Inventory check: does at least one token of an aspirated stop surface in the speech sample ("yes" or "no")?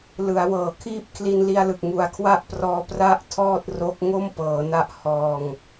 yes